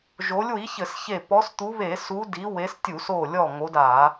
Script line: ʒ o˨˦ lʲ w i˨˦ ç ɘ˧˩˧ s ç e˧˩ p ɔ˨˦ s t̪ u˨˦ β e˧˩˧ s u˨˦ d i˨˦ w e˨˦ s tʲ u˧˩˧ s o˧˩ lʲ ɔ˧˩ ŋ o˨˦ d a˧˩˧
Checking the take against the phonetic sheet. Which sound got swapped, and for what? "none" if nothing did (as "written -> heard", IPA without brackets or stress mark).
none